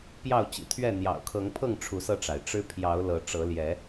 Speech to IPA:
p j ɑ˥˨ ʊ̯ t͡ɕ ḭ˨˩ t̪ʰ ɥ ɛ˥˨ n̪ j ɑ̰˨˩ ʊ̯ kʰ ɤ˨˦ ŋ pʰ ɤ˥˨ ŋ ʈ͡ʂʰ u˨˦ s ɤ˧ ʈ͡ʂ a˩ ɪ̯ ʈ͡ʂ ɻ̩˦ pʰ j ɑ˨˦ ʊ̯ l ɤ˨˦ ʈ͡ʂ ɤ˨˦ l j ɛ˨˦

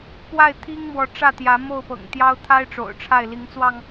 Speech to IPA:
p w a˥˨ ɪ̯ t̪ʰ i˦ ŋ m w ɔ˨˦ ʈ͡ʂ ä˥˨ t̪ j ä˨˦ m o˥˨ ʊ̯ p ɤ̰˨˩ ŋ t̪ j ɑ˦ ʊ̯ t̪ʰ a˦ ɪ̯ ʈ͡ʂ o̰˨˩ ʊ̯ ʈ͡ʂʰ a˥˨ ɪ̯ l i˨˦ ŋ t͡s w ɑ˧ ŋ

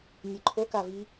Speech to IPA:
nʲ ɨ ǃʰ o k a v i

